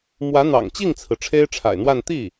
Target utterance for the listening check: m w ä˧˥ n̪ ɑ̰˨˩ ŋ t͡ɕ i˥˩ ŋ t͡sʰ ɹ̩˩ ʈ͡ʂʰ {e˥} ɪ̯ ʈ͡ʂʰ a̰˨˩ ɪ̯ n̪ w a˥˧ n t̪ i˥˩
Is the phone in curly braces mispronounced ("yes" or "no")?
no